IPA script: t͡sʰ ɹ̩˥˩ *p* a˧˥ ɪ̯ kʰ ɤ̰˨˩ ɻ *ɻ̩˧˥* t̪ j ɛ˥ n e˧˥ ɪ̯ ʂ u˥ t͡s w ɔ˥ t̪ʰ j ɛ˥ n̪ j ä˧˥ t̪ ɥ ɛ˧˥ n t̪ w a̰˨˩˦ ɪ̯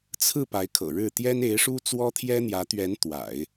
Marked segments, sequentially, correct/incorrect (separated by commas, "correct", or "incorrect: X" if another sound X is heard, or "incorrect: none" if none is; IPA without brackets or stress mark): correct, incorrect: ɻ̩˥˩